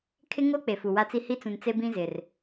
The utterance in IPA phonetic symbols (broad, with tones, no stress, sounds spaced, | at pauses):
kʰ ɪ˦ ŋ o˦ k͡p e˨ f u˨ w a˦ t͡s i˦ h i˦ t͡s ũ˨ n t͡s e˦ b ĩ˦ z ɪ˨ r